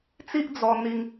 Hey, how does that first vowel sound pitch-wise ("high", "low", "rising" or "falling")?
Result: high